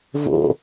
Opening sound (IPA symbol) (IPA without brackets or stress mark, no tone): v